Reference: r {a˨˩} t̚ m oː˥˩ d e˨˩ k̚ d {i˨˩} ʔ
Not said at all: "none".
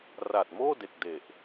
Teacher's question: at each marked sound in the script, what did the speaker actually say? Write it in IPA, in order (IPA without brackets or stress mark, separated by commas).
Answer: a˨˩, e˨˩